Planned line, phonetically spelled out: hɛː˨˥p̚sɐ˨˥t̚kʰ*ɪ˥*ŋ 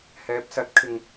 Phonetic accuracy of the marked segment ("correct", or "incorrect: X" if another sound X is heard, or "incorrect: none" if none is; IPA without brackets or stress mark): incorrect: ɪ˨